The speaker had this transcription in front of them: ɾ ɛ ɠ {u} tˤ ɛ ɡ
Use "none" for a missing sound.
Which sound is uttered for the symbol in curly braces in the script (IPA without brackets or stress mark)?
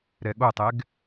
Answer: o